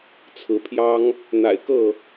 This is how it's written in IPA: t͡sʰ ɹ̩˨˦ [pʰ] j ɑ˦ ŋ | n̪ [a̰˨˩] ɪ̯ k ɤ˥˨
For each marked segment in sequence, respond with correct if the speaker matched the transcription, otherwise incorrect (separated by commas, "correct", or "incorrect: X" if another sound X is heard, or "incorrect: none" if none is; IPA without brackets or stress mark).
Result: correct, correct